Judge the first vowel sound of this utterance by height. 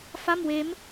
low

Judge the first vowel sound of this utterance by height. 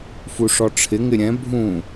high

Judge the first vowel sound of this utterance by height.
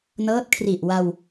mid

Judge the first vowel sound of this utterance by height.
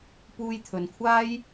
high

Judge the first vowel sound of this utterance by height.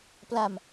low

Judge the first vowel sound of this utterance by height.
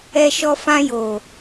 mid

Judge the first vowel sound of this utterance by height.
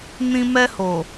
high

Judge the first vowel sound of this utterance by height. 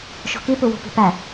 mid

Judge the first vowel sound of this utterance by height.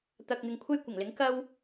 low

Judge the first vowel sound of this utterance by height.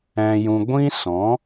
mid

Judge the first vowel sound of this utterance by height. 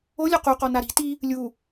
mid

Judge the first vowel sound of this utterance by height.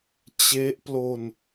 mid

